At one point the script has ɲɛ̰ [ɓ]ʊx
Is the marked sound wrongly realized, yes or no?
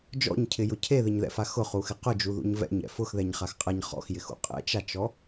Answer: yes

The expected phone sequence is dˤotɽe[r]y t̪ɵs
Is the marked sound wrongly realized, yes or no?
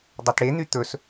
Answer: yes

